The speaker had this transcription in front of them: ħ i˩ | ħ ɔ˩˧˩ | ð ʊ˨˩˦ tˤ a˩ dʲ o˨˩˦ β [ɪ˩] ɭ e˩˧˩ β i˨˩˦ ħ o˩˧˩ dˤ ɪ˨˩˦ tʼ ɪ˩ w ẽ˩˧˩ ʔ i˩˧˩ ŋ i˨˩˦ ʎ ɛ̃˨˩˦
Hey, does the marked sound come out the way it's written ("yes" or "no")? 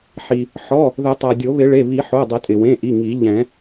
no